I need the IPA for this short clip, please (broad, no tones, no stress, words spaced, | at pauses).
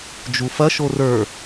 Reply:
d͡ʒufɐ ʃorə˞